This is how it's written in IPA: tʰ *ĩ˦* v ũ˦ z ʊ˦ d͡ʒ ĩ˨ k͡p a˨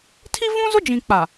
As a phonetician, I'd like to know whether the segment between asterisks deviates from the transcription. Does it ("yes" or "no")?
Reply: yes